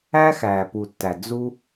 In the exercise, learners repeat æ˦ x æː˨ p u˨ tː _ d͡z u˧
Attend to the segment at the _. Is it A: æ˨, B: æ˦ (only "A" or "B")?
A